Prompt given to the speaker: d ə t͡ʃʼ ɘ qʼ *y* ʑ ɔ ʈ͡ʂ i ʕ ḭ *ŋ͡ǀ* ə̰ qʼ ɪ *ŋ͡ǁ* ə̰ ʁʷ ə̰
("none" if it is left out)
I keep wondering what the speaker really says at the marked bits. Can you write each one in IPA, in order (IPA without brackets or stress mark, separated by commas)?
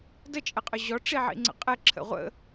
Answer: ʏ, ŋ͡ǀ, ǁʰ